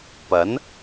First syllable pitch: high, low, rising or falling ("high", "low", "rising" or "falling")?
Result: rising